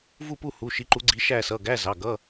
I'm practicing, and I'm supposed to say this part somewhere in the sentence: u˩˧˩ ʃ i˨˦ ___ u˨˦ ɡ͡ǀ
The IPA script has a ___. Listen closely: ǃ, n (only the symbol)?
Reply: ǃ